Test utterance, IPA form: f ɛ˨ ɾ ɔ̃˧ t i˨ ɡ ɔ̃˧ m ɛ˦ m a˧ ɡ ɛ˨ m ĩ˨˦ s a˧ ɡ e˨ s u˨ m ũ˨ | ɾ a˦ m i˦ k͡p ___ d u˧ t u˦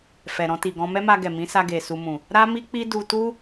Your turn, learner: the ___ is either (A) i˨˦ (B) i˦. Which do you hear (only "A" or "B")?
B